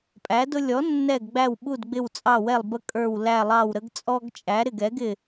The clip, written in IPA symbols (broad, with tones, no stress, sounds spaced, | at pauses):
pʼ æ˩˥ d ʊ˦ lʲ ɔ˩˥ nː ɛ˧˩ ɡ ɡ͡b æ˧˩ w ɓ u˧˩ d ɡ͡b ɪ˧˩ w t͡sʼ ɑ˧˩ w ɛ˧˩ lˠ b ə˦ kʼ ə˞˧˩ w l æ˧˩ lˠ ɑ˧˩ w ɾ ə˦ ɡ t͡sʼ ɔ˦ ɡ t͡ʃʼ æ˩˥ ɾ ɪ˧˩ ɡ ɛ˩˥ ɡ ɪ˧˩